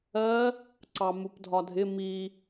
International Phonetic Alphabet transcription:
ɜ | ǀɑmupdʱɒdʱɪ mi

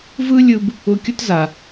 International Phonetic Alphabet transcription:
vɯ˥lʲɯ˧b | ʊ˧kʲʊ˥t za˩

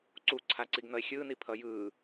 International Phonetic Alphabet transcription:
ǀuǀʰaǀiɡ nʌe̯xʲɯːni pʰʌjɯː

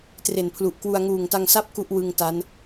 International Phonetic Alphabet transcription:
tre˨˩npʰlu˨˩ʔkwu˧a̯ ŋuː˨˩ŋta˧ŋsa˥˩p̚ ku˥˩ʔwɯ˧ŋ ta˦˥n

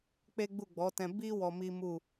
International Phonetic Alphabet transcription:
k͡pe˦ɡ͡bu˦˨ɡ͡bɔ˨˦tɛ̃˧ bi˦ wɔ˧mi˦mu˦˨

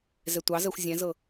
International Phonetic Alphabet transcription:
zɛtʷɑzɜxʷ zʲɛ̃zɤ

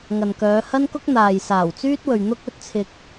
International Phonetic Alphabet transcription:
ŋɐ˨nkœː˨˧hɐ˥nkʊ˥k̚ n̪aː˨jsaː˨˩wt͡syː˥t̚wɵ˨ɥ n̪ʊ˥k̚ɵ˨˥t̚t͡sʰɪ˧k̚

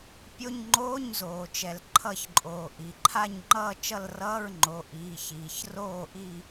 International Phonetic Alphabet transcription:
pʲo˧˥˧ɲ ŋ͡ǃoː˧˥˧ɲzoː˩ t͡ʃɛ˩lǃʰʌ˦˨çǃʼoː˩ ʔi˩ǃʰa˦˨ɲŋ͡ǃʌː˦˨ t͡ʃʌ˦˨lrʌː˧˥˧ɹŋ͡ǃo˩˧˩ ʔiː˩˧˩çiː˩ç roː˦˨ʔi˦˨

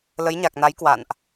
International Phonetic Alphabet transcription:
lə˨˦jɲa˨˩k̚na˨˦j kwa̰˧˨nʔ

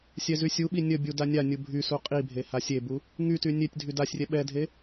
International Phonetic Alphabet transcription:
sʲɛzysʲuɓi nʲəbʲu danʲanʲu bʱysu qʼibʱe hasʲebu | ŋyty nʲetʲdʱy dasʲrʲɛ ɓɛdʱe

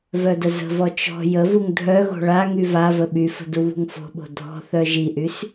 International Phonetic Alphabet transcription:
vœdəzə̤vɔ t͡ʃɔ̤ jəvuŋ dʱœɣo̤ ɭa ŋyvavə ɓyfə̤ duβṳŋfo̤ɓo̤ dʱɔ̤ θœʒiʔys

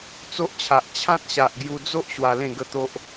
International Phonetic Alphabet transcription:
t͡so˦ʔt͡ɕʰa˨ʔ t͡ɕʰã˦t̚ɕa˨ʔ ɡju˧d͡zo˦ʔ ɕwa˧lẽ˥˧ɡə˥˧t̪o˦ʔ

